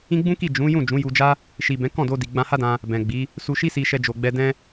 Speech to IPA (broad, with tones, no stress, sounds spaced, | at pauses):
ĩ˦ ɡ͡b ũ˦ k i˦˨ d͡ʒ ũ˨˦ j ũ˦˨ d͡ʒ ũ˨˦ j u˧ d͡ʒ a˦ | ʃ i˨ b ɛ̃˨˦ k ɔ̃˦˨ d o˧ d i˨ ɡ͡b ã˧ h a˦ d ã˧ | b ɛ̃˨ ɡ͡b i˨˦ | s u˧ ʃ i˦ s i˧ ʃ ɛ˧ d͡ʒ o˨ ɡ͡b ɛ˧ d ɛ̃˦